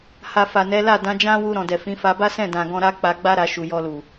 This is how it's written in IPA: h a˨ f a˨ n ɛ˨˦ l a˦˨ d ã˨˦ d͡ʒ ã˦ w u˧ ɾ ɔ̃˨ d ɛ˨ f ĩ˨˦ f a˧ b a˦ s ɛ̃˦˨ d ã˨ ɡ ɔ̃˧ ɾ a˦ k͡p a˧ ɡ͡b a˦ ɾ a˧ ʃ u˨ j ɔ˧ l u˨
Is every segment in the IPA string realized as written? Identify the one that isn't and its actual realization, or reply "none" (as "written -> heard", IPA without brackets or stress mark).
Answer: none